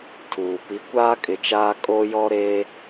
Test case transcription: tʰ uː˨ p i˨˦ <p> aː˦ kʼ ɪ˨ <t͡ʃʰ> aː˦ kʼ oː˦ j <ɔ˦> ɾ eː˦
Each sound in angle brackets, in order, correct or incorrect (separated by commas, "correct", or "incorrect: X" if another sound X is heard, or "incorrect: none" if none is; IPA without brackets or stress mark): incorrect: kʷ, incorrect: t͡ʃ, correct